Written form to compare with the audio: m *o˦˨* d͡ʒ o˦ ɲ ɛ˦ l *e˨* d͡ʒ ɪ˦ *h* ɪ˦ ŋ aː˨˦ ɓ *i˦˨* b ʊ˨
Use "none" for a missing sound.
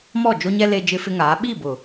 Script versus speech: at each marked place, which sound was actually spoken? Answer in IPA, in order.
ɔ˦˨, e˦, f, i˦˨

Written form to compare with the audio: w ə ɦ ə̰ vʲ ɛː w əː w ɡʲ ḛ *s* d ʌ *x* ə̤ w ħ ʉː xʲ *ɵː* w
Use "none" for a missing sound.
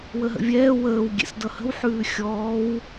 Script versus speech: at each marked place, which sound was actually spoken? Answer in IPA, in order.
s, h, ɔː

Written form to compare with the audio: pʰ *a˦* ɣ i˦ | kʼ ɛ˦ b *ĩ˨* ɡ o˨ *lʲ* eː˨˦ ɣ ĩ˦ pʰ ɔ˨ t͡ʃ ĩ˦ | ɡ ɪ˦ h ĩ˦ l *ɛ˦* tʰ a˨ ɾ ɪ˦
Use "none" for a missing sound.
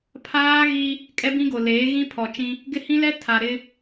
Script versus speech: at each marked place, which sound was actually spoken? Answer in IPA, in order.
aː˦, ĩ˦, l, ɛ˦

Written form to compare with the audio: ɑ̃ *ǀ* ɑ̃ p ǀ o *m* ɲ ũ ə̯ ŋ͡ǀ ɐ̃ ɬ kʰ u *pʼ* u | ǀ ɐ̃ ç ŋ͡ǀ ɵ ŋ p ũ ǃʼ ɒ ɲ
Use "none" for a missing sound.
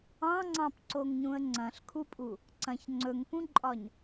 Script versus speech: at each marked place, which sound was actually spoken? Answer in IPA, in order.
ŋ͡ǀ, ŋ, pʼ

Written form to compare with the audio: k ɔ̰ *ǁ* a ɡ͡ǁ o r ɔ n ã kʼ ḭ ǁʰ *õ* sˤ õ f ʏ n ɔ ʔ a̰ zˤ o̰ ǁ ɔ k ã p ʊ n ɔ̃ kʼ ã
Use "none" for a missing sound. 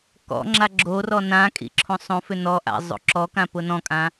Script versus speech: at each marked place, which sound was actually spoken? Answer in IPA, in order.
ŋ͡ǁ, õ

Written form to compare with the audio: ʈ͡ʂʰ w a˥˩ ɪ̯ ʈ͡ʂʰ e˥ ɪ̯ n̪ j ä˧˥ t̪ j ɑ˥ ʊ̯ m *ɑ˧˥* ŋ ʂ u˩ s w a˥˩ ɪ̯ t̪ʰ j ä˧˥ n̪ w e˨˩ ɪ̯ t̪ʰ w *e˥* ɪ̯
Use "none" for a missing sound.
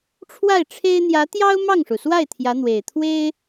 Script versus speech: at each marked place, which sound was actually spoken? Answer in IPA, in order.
ɑ˥˩, e˥

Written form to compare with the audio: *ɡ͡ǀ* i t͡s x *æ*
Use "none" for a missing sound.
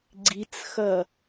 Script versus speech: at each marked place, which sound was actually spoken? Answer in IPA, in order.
ɡ͡ǀ, ɐ

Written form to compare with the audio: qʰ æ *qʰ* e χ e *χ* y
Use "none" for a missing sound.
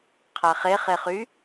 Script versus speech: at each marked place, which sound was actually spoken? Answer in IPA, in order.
χ, χ

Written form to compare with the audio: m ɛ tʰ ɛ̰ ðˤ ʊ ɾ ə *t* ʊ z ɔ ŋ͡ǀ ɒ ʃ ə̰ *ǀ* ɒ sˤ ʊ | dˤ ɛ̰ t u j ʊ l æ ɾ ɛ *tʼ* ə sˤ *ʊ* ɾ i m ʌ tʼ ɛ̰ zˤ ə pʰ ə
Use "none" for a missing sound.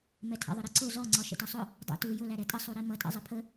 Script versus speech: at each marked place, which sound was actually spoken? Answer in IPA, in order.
ǀ, t, tʼ, u

